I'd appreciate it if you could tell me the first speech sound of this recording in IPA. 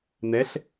n̪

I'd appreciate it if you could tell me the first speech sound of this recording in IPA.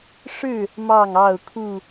ʂ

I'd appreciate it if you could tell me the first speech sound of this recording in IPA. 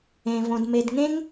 ẽ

